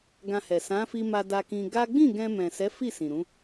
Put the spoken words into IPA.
ɡ ã˧ h ɛ˨ s ã˨˦ f i˧ m a˧ d a˧ k ĩ˧ ɡ a˦ ɡ͡b ĩ˦˨ ɡ ɛ̃˧ m ɛ̃˨ s ɛ˨˦ f i˦˨ s ĩ˨ ɾ ũ˨˦

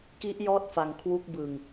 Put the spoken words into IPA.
k i˦˥ ʔ j ɔː˥˩ t̚ f a˩˦ ŋ kʰ w u˦˥ k̚ b ɯ˨˩ ŋ

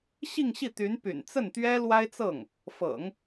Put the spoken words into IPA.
ɕ i˥˧ ŋ ɕ i˥˩ t̪ y˧˥ n p y̰˨˩ n t͡s ə˥˩ n t̪ ɥ ɛ˥ l w a˥ ɪ̯ t͡s ɤ˥˩ ŋ | f ɤ̰˨˩˦ ŋ

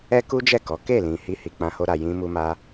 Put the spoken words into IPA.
ɛ˦ k u˦ d͡ʒ ɛ˦˨ k ɔ˨˦ k e˦˨ l ĩ˨ h i˧ h i˨ k͡p ã˧ h o˧ ɾ a˨ j ĩ˧ m u˧ m a˧

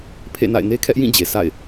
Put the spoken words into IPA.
pʰ ḛ˦˨ n a̰˦˨ ɪ̯ n e˦ kʰ ɛ˦ ʔ j ĩ˦˨ d͡ʑ e˨ s a̰˦˨ ɪ̯

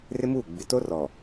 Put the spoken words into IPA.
r ɪ˦ m uː˦˨ ɡ͡b ɪ˨ t o˦ r ɔ˨

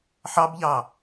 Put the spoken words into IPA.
ħ ɑ b ʎ ɑ

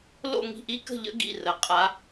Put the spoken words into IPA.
l o̰˥˧ ŋ i̤˥˧ ʔ i˦˥ k ə̤˥˧ ʎ ə̰˦˥ ɡ ḭ˩˧˩ r ə˩˧ qʼ a˨˥

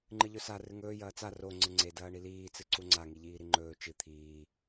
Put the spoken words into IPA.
ŋ͡ǃ ɨ ʎ ɵ s a r ɨ ŋ ɵː j ɐː t͡s a r o ŋ͡ǀ ɨ ŋ͡ǀ e d ɐː ɳ i l iː t͡s ɨ ǀ u ŋ͡ǀ a ŋ i ʎ iː ɾ i ŋ͡ǃ ɵː t͡ʃ ɨ t̪ʰ iː

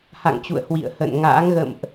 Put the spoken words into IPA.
h a̰˧˨ ŋ t͡ɕ ṵ˧˨ ə̯ h w ḭ˧˨ ə̯ h ə̰˧˨ n ŋ a̰ː˧˥ ŋ ɣ ə̰˧˨ m ʔ

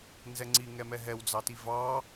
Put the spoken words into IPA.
n z ɛ ŋ͡ǀ i ŋ ɛ m ɛ ɦ ɛ w d͡z ɑ t i v ɑ

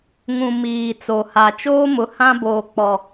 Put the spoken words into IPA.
ŋ ũ˨ m iː˨ t͡s o˨ h a˨ t͡ʃ oː˦ m ʊ˨ h ã˦ b oː˨ k͡p ɔ˨

